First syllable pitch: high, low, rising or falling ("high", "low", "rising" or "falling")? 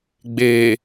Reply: low